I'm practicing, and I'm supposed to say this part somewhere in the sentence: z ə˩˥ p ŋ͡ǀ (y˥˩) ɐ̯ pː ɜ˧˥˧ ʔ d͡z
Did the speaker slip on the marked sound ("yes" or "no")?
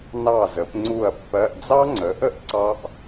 yes